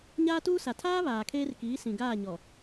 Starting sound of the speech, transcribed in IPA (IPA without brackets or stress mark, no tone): ɲ